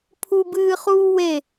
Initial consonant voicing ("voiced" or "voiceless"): voiceless